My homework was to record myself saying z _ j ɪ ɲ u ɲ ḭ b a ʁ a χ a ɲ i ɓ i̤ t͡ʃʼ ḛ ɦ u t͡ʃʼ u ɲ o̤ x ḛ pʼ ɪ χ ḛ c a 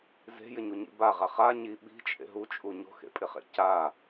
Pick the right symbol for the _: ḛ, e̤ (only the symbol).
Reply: e̤